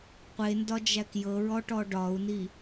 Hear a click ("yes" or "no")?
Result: no